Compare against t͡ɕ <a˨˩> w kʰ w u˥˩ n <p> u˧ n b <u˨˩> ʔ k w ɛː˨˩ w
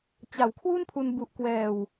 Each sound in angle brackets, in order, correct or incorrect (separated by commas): correct, incorrect, correct